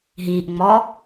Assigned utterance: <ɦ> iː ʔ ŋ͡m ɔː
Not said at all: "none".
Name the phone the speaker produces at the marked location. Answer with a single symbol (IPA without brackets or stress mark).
ɦ